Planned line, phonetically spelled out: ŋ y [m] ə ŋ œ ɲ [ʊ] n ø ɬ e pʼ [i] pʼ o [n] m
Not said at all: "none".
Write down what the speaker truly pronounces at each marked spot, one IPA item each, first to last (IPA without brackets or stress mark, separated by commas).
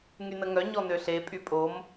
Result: n, ɔ, y, none